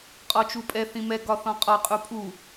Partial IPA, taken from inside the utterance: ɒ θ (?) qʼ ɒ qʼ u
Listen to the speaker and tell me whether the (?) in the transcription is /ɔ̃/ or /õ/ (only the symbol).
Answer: ɔ̃